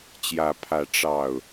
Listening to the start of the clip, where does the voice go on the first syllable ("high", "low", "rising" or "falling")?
rising